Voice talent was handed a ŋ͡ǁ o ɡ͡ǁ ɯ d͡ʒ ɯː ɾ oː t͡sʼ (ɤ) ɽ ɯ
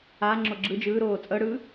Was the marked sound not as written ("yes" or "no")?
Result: no